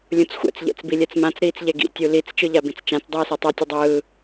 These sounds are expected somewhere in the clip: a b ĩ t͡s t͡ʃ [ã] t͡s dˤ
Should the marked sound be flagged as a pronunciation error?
no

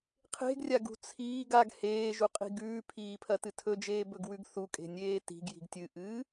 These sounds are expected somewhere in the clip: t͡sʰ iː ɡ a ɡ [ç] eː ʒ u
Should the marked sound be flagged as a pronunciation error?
yes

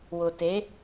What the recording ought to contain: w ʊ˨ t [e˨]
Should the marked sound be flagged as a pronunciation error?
yes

